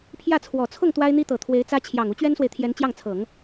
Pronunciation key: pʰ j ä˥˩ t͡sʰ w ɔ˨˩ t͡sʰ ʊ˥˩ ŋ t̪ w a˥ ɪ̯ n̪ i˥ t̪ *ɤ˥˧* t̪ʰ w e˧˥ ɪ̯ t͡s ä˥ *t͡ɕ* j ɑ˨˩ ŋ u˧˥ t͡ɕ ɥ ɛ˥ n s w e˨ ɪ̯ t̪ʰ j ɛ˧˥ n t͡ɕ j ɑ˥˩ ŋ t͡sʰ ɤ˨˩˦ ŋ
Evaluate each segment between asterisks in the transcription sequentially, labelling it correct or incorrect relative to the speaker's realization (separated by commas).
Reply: incorrect, incorrect